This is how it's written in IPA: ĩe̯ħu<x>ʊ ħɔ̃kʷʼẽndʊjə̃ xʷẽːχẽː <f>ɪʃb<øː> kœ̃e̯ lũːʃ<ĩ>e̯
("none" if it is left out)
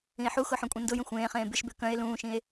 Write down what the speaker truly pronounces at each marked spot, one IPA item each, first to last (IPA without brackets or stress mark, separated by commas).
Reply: x, b, ø, ĩ